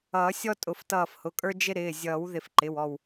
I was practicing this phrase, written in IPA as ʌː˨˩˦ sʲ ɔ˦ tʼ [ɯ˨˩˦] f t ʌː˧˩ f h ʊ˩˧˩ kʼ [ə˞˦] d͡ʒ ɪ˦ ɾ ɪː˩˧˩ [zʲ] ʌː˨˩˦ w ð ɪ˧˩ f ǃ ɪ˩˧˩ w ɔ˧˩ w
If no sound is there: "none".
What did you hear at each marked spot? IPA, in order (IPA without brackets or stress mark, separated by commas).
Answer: ʊ˨˩˦, ə˞˦, zʲ